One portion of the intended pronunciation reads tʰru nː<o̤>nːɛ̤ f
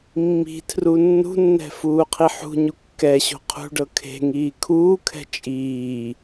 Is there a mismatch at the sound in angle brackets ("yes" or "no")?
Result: yes